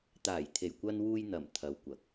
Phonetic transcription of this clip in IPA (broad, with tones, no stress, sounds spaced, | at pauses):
t̪ aː˨˩ j t̪ʰ e˨˩ j kʷ ɐ˧ n w uː˧ j n̪ ɐ˨˩ m t̪ʰ ɐ˨˧ w kʷ ɐ˨˥ k̚